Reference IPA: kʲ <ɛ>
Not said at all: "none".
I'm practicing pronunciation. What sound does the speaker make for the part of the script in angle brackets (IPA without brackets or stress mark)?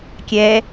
ɛ